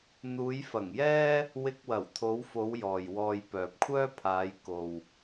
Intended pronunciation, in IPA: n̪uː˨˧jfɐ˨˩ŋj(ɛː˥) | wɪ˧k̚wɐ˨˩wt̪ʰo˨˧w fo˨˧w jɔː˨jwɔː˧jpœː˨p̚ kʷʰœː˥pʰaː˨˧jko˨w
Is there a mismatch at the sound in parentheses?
no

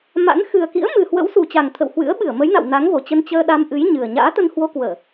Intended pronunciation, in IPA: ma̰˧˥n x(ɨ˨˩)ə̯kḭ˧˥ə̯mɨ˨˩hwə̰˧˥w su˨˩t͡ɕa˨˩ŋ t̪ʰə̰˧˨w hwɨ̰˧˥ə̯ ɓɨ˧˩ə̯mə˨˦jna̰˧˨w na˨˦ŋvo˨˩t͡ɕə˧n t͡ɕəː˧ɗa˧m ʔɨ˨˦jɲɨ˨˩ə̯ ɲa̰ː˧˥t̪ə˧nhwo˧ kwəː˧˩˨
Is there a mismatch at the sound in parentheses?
no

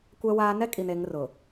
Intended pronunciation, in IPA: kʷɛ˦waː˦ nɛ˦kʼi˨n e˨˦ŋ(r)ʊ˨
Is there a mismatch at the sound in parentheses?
no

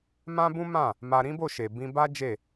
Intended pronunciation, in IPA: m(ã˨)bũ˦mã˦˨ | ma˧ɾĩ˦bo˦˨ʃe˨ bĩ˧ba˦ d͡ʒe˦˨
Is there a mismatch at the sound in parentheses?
yes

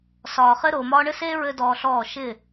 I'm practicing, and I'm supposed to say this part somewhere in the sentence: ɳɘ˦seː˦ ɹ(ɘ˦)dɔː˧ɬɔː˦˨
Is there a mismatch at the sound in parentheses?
no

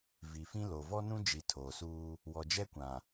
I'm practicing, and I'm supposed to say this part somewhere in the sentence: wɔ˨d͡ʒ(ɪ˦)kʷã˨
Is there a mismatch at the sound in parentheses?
yes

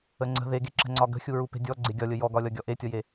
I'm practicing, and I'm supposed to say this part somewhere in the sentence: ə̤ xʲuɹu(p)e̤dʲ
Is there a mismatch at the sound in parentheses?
no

